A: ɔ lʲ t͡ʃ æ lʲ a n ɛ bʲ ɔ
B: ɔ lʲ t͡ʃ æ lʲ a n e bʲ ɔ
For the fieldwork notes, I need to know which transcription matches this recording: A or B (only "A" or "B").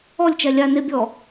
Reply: B